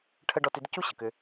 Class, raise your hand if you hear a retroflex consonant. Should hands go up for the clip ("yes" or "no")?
yes